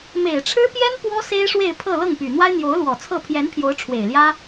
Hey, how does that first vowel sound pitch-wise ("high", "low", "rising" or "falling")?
low